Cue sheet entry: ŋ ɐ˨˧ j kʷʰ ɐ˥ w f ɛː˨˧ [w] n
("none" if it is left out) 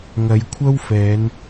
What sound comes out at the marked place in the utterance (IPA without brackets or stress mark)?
none